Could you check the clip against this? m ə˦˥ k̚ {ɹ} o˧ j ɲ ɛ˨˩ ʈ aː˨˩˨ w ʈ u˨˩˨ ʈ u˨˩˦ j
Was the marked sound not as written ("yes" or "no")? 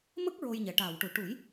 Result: no